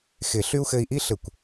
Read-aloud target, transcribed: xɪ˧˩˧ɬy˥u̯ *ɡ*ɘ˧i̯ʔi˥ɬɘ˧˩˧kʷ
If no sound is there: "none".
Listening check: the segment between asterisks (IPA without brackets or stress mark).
x